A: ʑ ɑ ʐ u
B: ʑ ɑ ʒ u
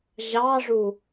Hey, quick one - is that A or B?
A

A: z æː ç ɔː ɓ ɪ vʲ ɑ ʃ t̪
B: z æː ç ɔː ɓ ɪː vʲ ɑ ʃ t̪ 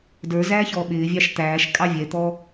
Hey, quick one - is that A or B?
B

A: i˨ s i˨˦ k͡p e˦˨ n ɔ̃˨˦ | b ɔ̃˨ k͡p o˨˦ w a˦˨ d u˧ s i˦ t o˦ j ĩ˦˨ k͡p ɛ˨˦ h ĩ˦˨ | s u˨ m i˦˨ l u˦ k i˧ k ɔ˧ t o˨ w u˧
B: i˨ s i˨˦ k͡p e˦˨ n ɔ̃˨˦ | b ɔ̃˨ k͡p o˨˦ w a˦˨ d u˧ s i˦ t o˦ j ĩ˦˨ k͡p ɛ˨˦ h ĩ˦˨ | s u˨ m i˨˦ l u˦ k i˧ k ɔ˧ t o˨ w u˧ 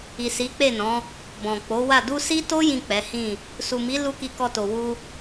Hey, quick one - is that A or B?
B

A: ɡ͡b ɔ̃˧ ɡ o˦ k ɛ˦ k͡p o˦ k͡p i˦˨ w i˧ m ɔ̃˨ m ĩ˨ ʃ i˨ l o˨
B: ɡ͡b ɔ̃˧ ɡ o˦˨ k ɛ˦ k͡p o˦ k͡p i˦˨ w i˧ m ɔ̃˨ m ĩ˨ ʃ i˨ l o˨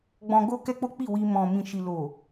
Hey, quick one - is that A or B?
A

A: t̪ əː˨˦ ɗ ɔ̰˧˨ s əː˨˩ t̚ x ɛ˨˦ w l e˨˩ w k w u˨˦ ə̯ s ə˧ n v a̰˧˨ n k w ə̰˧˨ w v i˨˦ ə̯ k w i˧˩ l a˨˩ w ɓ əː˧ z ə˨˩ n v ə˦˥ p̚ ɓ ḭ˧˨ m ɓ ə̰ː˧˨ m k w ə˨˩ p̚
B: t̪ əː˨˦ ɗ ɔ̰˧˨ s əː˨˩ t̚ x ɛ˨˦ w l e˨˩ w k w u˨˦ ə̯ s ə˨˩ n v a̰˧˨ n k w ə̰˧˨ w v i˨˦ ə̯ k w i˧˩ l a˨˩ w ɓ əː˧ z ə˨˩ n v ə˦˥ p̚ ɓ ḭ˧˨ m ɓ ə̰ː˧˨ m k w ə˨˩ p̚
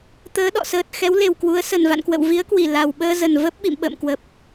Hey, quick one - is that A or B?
B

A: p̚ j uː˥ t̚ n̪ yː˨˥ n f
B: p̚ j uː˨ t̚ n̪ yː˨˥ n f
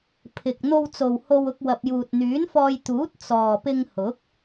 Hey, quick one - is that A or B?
B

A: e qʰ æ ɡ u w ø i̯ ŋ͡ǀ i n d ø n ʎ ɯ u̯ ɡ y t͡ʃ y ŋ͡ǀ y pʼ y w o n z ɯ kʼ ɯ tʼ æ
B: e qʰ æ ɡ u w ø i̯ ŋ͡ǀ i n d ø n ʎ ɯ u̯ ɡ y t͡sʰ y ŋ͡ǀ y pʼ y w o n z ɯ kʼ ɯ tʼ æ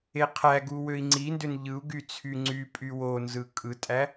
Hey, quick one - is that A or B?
B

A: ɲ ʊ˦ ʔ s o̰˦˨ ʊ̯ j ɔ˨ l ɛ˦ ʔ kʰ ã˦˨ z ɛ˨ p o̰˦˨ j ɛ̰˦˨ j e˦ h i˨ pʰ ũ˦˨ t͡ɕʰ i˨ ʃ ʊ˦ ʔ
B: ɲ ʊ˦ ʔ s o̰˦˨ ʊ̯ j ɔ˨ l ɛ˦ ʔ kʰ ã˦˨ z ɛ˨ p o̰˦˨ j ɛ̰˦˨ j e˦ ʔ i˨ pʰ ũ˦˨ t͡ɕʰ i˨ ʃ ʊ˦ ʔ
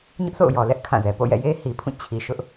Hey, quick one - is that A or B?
A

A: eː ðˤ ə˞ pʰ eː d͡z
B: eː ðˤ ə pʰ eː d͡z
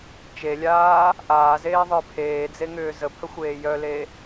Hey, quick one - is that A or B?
A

